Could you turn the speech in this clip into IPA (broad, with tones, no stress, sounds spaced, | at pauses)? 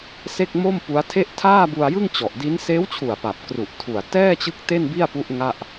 s e˥˩ k̚ m o˥˩ m p u˦˥ a̯ tʰ e˥˩ ʔ tʰ aː˥˩ b u˧ a̯ j ɯ˥˩ ŋ t͡ɕ ɔ˨˩ ʔ d i˦˥ n s eː˦˥ w t͡ɕʰ u˨˩ a̯ p a˨˩ p̚ k r u˨˩ ʔ tʰ u˨˩ a̯ t ɛː˥˩ t͡ɕ ɯ˦˥ k̚ t e˥˩ n b i˥˩ a̯ p u˦˥ ʔ ŋ a˥˩ ʔ